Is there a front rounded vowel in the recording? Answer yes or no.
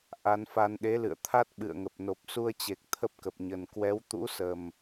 no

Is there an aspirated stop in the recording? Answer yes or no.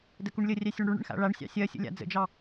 no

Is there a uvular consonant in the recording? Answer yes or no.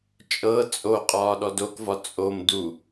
yes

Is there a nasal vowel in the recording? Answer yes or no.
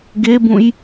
yes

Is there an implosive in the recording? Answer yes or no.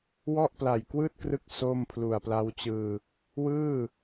no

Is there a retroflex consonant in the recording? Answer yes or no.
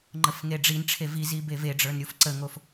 yes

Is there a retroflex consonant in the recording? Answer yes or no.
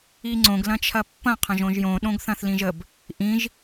no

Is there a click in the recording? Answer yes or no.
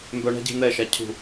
no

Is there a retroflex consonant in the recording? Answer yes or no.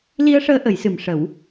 yes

